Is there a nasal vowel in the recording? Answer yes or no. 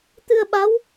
no